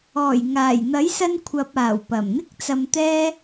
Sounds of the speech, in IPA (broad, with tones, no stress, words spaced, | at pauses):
ɔː˨˩jŋaː˨˩j n̪ɐ˨˥jsɐ˧nkʷʰɐ˨p̚aː˨˩w pɐ˨˩mn̪ɪ˥k̚t͡sɐ˧mt̪ɛː˥